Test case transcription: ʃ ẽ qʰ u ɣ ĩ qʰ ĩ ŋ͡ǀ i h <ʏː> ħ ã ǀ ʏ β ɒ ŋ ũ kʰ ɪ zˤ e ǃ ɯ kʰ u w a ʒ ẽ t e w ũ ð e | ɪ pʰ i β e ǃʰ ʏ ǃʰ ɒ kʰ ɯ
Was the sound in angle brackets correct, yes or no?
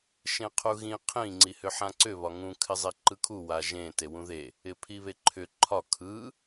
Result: no